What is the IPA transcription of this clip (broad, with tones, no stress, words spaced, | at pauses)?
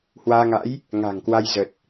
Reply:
hwaː˧ŋa̰˧˥j | ŋa̤˨˩ŋkwa˧j zə˨˩t̚